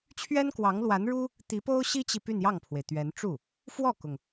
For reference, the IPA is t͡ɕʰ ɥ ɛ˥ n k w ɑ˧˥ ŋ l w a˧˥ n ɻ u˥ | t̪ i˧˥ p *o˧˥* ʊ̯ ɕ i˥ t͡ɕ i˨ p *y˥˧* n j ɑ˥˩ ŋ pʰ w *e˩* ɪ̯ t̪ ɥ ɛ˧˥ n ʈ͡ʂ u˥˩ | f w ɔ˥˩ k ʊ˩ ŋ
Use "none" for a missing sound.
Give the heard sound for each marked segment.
o˥, y˥˧, e˩

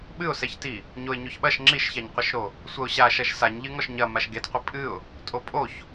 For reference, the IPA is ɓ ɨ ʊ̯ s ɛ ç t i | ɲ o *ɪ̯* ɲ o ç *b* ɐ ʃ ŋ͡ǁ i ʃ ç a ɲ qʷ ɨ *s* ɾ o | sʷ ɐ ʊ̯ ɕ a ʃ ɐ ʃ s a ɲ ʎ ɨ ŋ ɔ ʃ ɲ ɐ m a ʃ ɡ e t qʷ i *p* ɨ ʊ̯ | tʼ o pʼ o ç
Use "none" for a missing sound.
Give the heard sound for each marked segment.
ɪ̯, ɓ, ʃ, pʼ

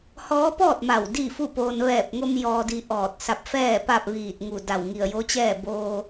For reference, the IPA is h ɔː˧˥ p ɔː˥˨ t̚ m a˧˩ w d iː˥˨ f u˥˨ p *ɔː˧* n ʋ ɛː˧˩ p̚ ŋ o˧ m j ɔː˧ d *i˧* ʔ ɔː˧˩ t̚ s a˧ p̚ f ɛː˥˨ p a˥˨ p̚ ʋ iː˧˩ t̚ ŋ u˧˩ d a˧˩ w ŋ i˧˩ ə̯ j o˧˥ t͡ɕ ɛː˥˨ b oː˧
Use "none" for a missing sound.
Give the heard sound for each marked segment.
oː˧, i˧

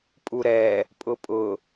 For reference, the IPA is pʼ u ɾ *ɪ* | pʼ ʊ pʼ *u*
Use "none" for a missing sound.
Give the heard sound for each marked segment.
ɛ, ʊ

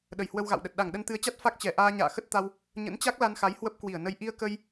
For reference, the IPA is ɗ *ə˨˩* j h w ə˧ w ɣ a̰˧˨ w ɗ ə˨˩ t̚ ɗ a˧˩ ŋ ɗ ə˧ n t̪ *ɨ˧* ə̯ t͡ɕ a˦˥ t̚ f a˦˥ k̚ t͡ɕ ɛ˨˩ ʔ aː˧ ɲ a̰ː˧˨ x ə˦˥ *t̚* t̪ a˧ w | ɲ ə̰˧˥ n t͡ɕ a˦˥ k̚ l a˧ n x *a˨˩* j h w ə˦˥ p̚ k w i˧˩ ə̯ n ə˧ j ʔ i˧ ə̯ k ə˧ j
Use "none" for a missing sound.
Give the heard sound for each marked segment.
ə˨˩, ɨ˨˦, t̚, a˨˦

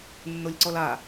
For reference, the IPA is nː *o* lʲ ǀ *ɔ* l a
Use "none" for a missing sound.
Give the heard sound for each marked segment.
o, ɔ

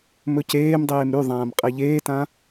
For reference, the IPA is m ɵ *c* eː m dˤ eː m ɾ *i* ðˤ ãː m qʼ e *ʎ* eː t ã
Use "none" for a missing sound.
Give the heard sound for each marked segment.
c, y, ʎ

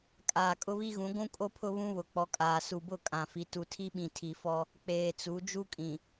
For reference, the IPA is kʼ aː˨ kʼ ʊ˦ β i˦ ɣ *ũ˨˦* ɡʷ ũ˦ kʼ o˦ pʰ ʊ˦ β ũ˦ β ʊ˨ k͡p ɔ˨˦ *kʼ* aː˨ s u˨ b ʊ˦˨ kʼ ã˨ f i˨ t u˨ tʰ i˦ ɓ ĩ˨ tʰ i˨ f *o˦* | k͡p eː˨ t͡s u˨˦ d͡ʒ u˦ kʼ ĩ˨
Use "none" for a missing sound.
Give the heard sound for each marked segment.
ũ˨˦, kʼ, ɔ˦

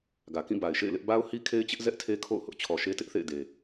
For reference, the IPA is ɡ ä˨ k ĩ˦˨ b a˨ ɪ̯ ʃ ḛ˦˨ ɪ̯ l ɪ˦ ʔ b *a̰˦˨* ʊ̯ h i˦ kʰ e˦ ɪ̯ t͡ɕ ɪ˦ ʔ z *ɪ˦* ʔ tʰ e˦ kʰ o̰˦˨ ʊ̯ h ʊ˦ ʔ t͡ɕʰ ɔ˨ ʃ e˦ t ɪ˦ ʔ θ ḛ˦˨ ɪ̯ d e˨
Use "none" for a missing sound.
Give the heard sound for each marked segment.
a˦, ɛ˦

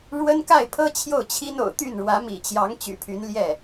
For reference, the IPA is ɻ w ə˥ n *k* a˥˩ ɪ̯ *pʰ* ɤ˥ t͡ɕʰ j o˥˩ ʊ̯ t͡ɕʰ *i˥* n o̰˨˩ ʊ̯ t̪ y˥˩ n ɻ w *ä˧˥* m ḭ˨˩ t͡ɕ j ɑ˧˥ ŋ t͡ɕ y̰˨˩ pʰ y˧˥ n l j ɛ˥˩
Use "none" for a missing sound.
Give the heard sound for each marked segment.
k, pʰ, i˥, ä˧˥

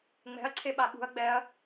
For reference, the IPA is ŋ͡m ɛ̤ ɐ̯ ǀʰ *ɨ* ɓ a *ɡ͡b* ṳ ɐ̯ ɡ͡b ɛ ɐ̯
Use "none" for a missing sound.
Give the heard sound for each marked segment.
e, ɓ

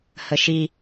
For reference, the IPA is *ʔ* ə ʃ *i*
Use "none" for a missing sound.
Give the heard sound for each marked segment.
h, i

